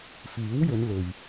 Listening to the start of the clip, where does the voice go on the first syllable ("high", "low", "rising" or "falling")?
rising